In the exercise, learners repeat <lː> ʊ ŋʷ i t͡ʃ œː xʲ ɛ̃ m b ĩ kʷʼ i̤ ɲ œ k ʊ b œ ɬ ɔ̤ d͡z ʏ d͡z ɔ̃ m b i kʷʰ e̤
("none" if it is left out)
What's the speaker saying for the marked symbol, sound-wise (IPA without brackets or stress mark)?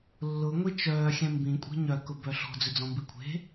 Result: lː